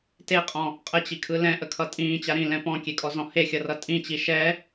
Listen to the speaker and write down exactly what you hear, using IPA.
t e qʼ ɔ̃ | qʼ ə t͡ɕ i kʰ ɯ l ɛ̃ ʔ ə kʰ ʌ tʼ ĩː t͡ɕ a ɾ ĩ l ɛ̃ p ɔ̃ kʲ e kʼ ɔ z ɔ̃ h e xʲ ʌ r ʌ tʼ ĩ t͡ɕ i ʃ ɛ

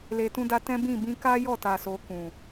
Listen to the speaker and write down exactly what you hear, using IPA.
l e˨ t ũ˧ d a˧ t ɛ̃˦ b ĩ˦˨ b ĩ˧ k a˦ j ɔ˦˨ t a˨ s o˧ k ũ˨

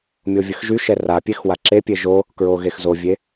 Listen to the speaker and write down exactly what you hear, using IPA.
mʲ o vʲ ə x ʒ y ʃ ɛ r a pʲ e x w a ǁ e pʲ e ʒ o | k ɹ o ɣ e x z o vʲ e

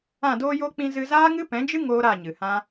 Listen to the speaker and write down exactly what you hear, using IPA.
ã˦˨ d oː˦ j o˦ k͡p ĩ˧ z ɨ˧ z aː˦ ŋ ɨ˦ p ɛ̃˨˦ d͡ʒ ɨ˦ ŋ oː˦ ɾ a˦˨ ɲ ɨ˨ h ã˦

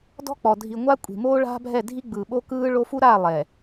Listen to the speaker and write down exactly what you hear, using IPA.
d ɔ̤˦ k͡p ɔ˨ dʱ i˨ ŋʷ a˦ kʷʼ i̤˨ m oː˦ ɭ a̤˦ bʱ ɛ˦˨ dʱ i˦ ɡ͡b ɯː˨ ɓ o˦ k ɯː˦ ɭ o˦ f u˦ ɾ a˦˨ lˠ ɛ˨

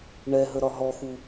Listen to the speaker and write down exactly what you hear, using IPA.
ɳ ɛ ɦ ə ɾ ɒ ɦ ɔ x u

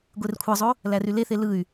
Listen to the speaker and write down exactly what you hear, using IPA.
ɡʷ e r kʷʰ ɑ zˤ o | l æ r y l e θ e l ɯ y̯

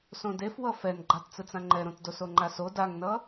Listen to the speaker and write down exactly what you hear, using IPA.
s õ d e f w ʌ f ɛ n ɡ͡ǃ a t t͡s ɯ t͡s ã ŋ͡ǃ ɛ ɾ õ t d o s o ŋ͡ǃ a s o d a ŋ n ʌ

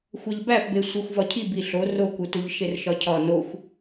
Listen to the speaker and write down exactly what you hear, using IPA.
xʷ æ ʎ b æ p b e sʷ e xʷ v ɒ cʰ i b i ɬ o r o k u t u ʎ ʃ e r ʃ ɒ cʰ ɒ n o xʷ

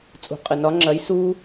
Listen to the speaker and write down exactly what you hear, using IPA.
t͡sʼ ṳ˨ qʼ ɘ˨ n ɒ˨˦ ŋ͡ǁ ɐ˨˦ j s uː˦

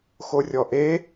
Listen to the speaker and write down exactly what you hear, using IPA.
x o rʲ ɔ ʔ e

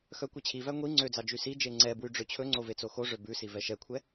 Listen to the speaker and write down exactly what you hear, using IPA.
x œ kʷ ɛ t͡ɕʰ i v æ ŋʷ i ŋ͡ǀ ø d͡z ɑ d͡ʒ y s i d͡ʒ e ŋ͡ǀ ɛ b w y ɖ͡ʐ ø t͡ɕʰ ɵ ŋ͡ǀ o v e t͡s o x o ʐ ø b ʉ s i v ɛ ʃ ɛ kʷʰ ɛ

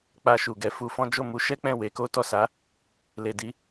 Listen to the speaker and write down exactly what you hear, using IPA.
k͡p a˧ ʃ u˨ ɡ ɛ˧ f u˧ f ɔ̃˦ d͡ʒ o˦˨ m u˨˦ ʃ ɛ˦ k͡p ɛ̃˦˨ w e˨˦ k o˦ t ɔ˦˨ s a˨˦ | l e˨ d i˨˦

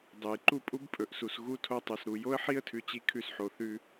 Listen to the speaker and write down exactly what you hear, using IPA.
dˤ ɨ˨ j ǃ u˦ pʼ u˦ b pʼ ɵ˨ ʔ s u˨ s ɣ u˦ tʰ o˦ tˤ ʉ˨ s ɾ u˨ j o˦ ə̯ ħ i˦ ə̯ tʰ ʉ˨ t͡ɕ i˦ kʰ ʉ˦ s ħ o˨ θ ʉ˦

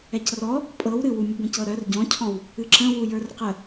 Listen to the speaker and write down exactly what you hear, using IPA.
ɛ c r ɔ | pʼ ɤ w ɾ ɨ w u mʲ ə b ə̃ c ɤ ɾ œ r ɟ ɔ̃ cʰ ɔ̃ w | ɨ ǁ ə̃ w u j ə˞ r q ə

